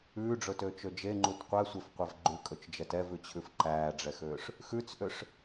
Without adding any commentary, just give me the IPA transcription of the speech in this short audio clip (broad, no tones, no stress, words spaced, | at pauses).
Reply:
ʉːɖ͡ʐɵtøːt͡ʃø d͡ʒeŋ͡ǃut qʷæsʷefqʷɛv ɡ͡ǃʉkʼɵt͡ʃd͡ʒɛt ɛvʉt͡ɕʰʉf ǃæːɖ͡ʐɛxøːʂ | xʉt͡sʔøʂ